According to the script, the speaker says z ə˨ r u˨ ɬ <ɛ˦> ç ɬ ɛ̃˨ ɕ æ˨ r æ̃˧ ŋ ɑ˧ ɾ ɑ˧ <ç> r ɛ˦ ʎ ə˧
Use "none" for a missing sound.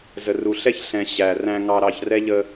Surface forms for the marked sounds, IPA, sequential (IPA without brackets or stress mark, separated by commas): ɛ˦, ç